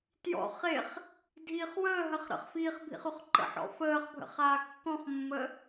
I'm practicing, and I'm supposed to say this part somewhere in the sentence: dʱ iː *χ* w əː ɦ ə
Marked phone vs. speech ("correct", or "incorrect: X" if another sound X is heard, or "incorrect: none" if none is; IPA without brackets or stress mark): correct